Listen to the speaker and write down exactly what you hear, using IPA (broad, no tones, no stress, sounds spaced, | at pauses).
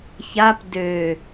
ç a p d ø